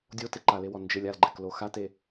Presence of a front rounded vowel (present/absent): absent